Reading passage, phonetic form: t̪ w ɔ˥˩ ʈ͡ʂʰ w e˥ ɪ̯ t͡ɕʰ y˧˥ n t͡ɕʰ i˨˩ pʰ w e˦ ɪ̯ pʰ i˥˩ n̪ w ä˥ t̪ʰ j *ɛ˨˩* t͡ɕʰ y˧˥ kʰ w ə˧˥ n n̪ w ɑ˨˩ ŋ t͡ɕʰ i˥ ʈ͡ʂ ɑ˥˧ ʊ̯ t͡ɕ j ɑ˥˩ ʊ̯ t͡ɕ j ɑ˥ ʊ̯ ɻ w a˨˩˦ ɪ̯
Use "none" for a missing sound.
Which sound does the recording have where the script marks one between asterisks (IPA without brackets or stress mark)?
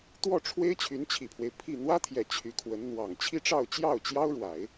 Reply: ɛ˨˩